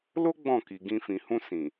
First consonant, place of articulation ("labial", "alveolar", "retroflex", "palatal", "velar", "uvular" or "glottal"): alveolar